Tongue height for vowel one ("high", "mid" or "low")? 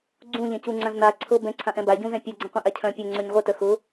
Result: high